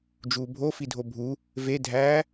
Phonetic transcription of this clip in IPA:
d͡ʒ uː bʱ o f i dʱ o bʱ u | v e dʱ æː

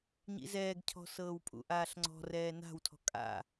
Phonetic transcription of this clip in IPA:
ɲ ḭ z ɛː ɡ cʰ ɔ̤ s ɤː w pʼ ṵ ʔ aː ɬ ŋ͡ǀ ɔ̤ r ɛː n a̤ w tʰ ɔ̤ kʼ a̰

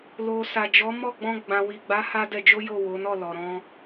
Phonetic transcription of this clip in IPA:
l o˨ s a˨ d͡ʒ ɔ˨˦ m ɔ˦˨ ɡ͡b ɔ̃˧ ɡ͡b ã˨ w i˨ ɡ͡b a˨˦ h a˦ d ɛ˧ d͡ʒ o˦ j o˦˨ w o˨˦ n ɔ˦˨ l ɔ˨ ɾ ɔ̃˧

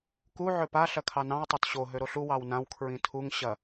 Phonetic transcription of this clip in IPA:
k u ʕ ø p a ɬ ɐ kʰ ɑ n ɑ̃ w tˤ ø t ɕ o ɦ ø ɾ o ɬ u w ɑ w n ã w kʰ ɹ ĩ tʰ u ŋ ɕ ɐ

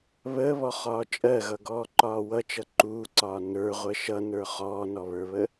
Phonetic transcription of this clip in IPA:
β əː β ɔ χ ɒː t͡ʃʼ ɜ ɣ ʌ ɡ ɔː ǃ ɒː w ʌ t͡ʃ ʌ ǃ uː ǀ ɒː n ə˞ ʁʷ ɜ ʃ ʌ n ə˞ χ ɔː n ɔ β ə˞ β ə

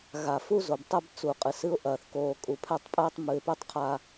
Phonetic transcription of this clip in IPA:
ɣ a˨ f u˦ z o˨ b tˤ ɛ˦ b t͡s u˨ qʼ ɨ˨ s ɨ˦ ʊ̯ ʔ ɐː˨ θ k oː˨ kʼ u˨ pʰ ɛ˦˨ tˤ pʼ ɛː˦ tˤ m ɨ˨ ɪ̯ p e˦ tˤ qʰ a˨

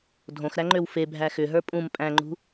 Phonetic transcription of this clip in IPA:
dʱ õ x ɾ æ ŋ͡ǃ ø w f e bʱ æ x ʏ ɦ ə˞ pʼ ũ m pʼ æ̃ ŋ͡ǃ ṳ

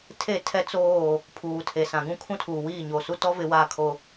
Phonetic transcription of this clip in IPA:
tʰ e˦˨ tʰ ɛ˦ t͡s oː˦˨ | pʰ uː˨ tʰ e˨ s ã˨ ɡ ũ˦ kʰ ũ˦ tʰ uː˨ w iː˦˨ ɲ oː˨ s u˦ t ɔ˦ v ɪ˨˦ w aː˦˨ kʰ o˦

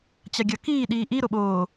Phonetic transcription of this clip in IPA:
t͡ɕ a ɡʲ ʌ k iː ɗ iː ʔ i ɾ o ɓ oː

